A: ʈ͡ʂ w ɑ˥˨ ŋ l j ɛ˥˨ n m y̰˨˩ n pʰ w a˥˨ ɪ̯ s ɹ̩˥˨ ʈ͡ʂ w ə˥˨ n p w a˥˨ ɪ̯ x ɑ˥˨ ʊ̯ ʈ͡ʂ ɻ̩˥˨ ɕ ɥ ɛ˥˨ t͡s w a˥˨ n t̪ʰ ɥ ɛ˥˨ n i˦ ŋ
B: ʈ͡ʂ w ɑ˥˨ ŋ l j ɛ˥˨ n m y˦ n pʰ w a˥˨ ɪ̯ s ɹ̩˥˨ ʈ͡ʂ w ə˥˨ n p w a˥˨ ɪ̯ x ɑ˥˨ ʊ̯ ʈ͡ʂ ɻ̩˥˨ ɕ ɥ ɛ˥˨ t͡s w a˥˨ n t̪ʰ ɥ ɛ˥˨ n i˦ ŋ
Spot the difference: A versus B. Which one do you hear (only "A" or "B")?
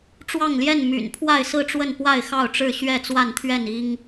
A